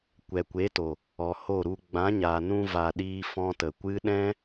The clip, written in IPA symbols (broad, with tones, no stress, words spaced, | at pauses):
kʷɛ˨kʷe˨˦to˨ | ɔ˨ho˦˨ɾu˧ ɡ͡bã˨˦ɲa˨nũ˧va˨ ɗiː˧fɔ̃˧tə˨kʷɨ˦ ɗɛ̃˦